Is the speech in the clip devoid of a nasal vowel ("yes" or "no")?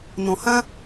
no